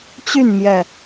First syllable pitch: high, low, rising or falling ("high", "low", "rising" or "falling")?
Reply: falling